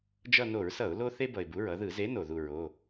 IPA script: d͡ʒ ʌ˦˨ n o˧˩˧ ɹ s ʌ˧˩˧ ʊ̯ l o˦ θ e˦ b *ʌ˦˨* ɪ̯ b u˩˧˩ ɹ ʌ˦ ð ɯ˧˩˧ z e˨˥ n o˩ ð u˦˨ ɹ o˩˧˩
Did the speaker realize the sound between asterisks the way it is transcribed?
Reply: no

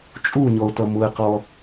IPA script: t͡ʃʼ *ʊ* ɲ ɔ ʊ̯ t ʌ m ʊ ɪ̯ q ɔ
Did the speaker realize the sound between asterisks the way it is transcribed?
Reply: no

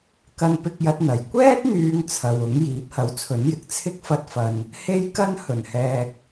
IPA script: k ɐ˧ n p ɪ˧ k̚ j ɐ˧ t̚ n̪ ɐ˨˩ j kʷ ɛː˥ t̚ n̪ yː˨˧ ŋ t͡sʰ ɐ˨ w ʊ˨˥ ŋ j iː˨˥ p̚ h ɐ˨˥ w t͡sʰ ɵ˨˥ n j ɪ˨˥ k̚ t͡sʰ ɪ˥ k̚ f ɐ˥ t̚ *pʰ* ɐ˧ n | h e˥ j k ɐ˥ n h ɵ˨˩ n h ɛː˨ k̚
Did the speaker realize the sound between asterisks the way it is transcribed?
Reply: no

